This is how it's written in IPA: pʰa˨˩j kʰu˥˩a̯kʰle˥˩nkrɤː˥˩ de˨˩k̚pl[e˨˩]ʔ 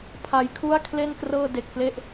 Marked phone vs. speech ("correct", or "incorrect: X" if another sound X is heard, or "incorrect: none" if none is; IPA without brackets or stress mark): incorrect: e˥˩